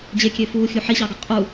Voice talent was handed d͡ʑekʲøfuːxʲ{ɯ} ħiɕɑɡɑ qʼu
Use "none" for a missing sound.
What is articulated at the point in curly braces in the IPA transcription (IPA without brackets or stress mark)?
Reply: u